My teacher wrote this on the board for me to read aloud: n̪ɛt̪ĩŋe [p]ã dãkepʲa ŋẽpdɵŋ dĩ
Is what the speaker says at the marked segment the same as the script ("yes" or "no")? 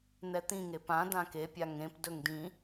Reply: yes